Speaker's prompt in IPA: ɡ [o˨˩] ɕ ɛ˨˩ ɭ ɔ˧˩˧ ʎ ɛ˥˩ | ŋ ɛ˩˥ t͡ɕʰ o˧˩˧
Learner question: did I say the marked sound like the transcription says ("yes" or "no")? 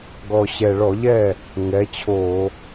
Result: no